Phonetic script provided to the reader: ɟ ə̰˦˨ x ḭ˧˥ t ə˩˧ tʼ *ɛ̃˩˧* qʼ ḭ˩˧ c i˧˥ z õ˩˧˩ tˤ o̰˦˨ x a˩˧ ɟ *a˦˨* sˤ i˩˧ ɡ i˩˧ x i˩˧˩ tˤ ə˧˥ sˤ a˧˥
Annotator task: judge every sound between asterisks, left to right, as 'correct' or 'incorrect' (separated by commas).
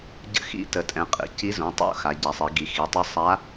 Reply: correct, incorrect